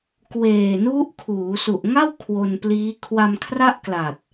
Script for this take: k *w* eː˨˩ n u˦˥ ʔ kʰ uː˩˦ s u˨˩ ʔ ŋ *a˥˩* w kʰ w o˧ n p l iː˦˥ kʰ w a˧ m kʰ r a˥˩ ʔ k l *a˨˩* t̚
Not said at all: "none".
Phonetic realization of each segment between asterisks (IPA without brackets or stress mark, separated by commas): w, a˥˩, a˨˩